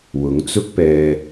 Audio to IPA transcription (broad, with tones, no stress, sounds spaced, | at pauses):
w ʊ˨˥ ŋ t͡s ʊ˥ k̚ p ɛː˧